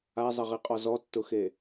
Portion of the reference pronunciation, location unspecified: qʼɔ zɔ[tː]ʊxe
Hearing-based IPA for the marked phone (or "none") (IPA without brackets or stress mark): tː